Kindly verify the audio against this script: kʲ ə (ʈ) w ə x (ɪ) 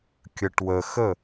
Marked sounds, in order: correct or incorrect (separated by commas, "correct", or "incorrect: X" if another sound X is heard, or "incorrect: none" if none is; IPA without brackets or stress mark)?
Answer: correct, incorrect: ə